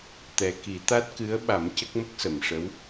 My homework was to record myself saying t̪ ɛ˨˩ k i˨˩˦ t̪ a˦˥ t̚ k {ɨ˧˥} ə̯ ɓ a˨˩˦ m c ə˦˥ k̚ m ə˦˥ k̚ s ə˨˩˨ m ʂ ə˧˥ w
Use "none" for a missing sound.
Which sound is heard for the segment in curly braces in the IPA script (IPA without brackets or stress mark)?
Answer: ɨ˧˥